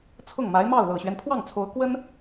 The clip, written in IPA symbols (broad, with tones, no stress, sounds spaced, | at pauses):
t͡sʰ ʊ˥˩ ŋ m a˧˥ ɪ̯ m ɑ˥˩ ʊ̯ l ɤ˨˩ ɕ ɥ ɛ˦ n pʰ w ɑ˥˩ ŋ t͡sʰ o˧˥ ʊ̯ k w ə˥ n